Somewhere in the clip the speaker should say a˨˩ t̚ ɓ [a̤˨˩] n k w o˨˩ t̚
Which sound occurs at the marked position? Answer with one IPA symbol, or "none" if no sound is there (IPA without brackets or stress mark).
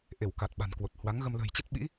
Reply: a̤˨˩